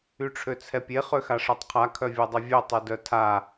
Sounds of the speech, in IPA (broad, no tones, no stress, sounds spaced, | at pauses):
y ʈ͡ʂʰ ø t͡sʰ ɛ pʲ e χ ø x a ʂ œ tˤ qʰ a kʰ œ vʲ ɔ dˤ œ vʲ ø tˤ ø d œ tʰ a